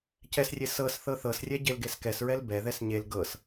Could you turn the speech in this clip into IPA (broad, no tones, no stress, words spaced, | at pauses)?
cɛsrʲe sɤs θɤθɤsrʲɛ ɟelɡeskɛsɹɛl bɛðɛs ɲel ɡɤs